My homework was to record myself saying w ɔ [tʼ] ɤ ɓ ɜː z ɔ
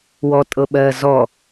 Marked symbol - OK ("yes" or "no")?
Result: yes